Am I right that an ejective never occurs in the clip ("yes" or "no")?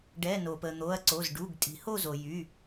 no